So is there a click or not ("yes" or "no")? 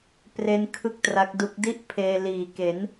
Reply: no